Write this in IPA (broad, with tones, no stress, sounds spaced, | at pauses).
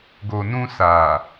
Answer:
ɡ o˨ n ũ˧ s a˨